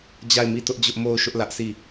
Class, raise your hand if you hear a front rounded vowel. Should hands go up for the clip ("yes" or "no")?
no